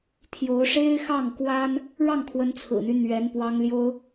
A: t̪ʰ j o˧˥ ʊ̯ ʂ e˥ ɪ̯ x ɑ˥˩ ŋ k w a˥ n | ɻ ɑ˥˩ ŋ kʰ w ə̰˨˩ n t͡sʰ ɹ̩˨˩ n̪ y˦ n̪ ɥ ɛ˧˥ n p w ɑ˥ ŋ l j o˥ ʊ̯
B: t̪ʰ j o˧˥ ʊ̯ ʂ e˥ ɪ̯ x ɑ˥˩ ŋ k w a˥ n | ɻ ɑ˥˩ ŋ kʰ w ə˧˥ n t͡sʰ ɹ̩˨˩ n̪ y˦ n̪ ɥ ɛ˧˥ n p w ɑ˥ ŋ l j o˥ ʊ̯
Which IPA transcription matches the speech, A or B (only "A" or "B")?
B